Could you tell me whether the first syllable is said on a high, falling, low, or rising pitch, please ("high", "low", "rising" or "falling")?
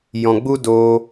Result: low